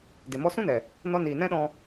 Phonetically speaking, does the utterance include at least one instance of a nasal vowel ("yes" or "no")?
yes